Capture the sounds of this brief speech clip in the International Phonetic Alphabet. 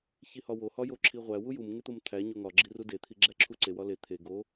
ç i h ɒ w o h ɒ j o ǁʰ i ʁʷ æ w u j u m ŋ e t̪ o m t̪ʰ æ ɲ o ŋ ɒ ɡ͡ǁ i r u d e t̪ʰ i ɡ͡ǁ æ ǁʰ u ǀ e w ɒ l e t̪ʰ e ɡ o

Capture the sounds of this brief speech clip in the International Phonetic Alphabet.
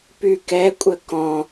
p y k ɛ kʷʼ ə k ɔ̃

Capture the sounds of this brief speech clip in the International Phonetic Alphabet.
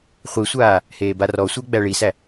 χʷ i sʷ aː | h eː b a r ɔ sʷ ə˞ ɡ͡b æ ɭ i s æ

